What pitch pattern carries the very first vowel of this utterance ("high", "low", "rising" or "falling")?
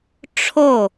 falling